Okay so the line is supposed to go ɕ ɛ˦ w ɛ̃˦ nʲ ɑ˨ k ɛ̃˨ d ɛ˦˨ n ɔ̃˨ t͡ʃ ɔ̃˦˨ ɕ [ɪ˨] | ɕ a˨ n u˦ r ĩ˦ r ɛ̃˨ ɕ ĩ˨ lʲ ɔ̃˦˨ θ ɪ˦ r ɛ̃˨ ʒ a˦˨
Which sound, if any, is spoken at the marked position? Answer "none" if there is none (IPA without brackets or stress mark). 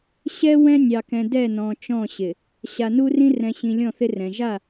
ɪ˨